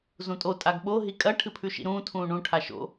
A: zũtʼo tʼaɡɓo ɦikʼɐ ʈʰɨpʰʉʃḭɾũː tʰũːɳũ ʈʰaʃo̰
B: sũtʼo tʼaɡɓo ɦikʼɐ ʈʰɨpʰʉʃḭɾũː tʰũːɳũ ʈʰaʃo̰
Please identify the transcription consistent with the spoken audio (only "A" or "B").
A